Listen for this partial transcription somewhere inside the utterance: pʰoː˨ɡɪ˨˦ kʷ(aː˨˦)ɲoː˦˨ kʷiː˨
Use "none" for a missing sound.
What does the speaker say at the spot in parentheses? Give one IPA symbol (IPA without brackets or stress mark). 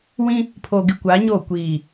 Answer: aː˨˦